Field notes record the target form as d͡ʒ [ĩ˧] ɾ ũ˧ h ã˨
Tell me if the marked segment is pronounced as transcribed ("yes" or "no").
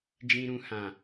yes